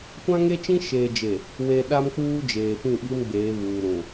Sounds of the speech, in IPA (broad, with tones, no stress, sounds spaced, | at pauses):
kʷ ã˦ ŋ e˦ t͡ʃ ĩ˦ ʃ eː˨ d͡ʒ e˨ | w e˨ ɗ a˦ m k͡p uː˦ d͡ʒ eː˨ p ĩ˦˨ ɓ i˦ m ɡ͡b eː˨˦ β uː˨ ɾ ũ˨